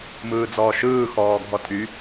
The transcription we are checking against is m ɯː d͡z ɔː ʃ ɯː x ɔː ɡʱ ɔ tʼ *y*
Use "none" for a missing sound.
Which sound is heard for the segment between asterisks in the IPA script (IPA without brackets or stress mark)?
y